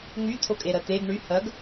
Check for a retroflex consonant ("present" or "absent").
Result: present